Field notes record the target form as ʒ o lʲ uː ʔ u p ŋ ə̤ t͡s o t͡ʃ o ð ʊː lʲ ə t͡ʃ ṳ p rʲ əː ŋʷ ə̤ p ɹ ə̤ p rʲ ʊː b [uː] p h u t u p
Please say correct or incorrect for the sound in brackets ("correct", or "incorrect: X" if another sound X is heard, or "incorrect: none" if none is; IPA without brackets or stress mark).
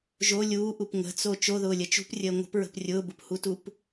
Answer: incorrect: u